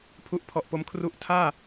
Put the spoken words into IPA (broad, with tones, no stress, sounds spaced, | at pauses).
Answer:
pʰ u˦˥ ʔ pʰ ɔ˨˩ ʔ p o˧ m kʰ r u˦˥ ʔ tʰ aː˥˩